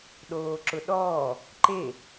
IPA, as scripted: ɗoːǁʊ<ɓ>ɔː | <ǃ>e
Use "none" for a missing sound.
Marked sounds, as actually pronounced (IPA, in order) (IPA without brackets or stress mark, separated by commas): ɗ, ǃ